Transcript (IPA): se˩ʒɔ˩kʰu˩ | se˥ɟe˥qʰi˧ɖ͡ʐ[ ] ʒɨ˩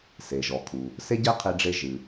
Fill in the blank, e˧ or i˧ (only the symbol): e˧